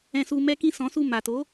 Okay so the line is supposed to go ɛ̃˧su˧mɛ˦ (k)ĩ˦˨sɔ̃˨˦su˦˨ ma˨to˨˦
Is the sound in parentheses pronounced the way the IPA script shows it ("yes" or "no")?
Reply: yes